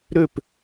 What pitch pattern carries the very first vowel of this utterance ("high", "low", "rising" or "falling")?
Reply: falling